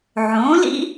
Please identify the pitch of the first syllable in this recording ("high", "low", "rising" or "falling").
rising